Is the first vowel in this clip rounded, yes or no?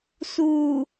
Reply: yes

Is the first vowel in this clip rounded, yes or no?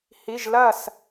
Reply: no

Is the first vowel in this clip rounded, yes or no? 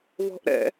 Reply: yes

